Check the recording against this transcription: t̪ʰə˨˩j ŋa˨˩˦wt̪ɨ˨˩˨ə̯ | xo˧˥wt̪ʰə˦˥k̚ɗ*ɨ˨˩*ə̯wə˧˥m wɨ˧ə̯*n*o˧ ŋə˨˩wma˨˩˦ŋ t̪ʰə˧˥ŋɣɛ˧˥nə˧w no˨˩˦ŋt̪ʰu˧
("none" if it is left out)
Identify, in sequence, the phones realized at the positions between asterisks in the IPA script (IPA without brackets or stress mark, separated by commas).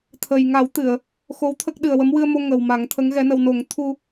ɨ˨˩, m